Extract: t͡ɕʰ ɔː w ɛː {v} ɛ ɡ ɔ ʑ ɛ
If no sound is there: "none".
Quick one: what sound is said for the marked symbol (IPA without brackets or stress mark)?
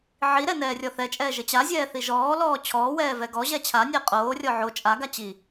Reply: v